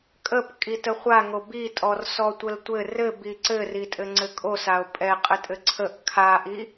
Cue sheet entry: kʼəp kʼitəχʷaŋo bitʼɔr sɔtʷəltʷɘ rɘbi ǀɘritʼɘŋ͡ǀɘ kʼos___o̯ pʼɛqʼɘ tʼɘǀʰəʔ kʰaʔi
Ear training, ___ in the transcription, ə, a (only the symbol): a